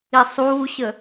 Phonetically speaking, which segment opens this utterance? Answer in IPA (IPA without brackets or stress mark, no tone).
i